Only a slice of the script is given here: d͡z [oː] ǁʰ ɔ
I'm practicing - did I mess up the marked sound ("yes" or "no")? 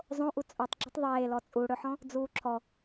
yes